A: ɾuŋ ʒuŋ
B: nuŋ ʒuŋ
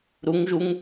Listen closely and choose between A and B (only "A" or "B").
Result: A